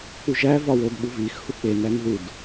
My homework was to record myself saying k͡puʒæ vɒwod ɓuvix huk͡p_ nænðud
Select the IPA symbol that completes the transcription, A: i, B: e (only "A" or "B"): B